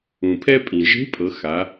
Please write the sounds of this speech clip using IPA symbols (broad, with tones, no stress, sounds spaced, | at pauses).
ũ˩ pʰ ɛ˥ pʼ ĩ˩ ʒ e̤˧˥ pʼ ɤ˩˧ x a˩˧